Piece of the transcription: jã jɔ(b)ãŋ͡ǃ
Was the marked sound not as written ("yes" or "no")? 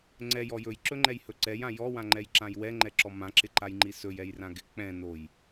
yes